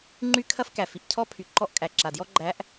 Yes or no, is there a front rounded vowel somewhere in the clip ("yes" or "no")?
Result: yes